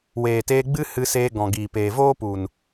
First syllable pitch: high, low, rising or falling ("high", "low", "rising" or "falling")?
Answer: low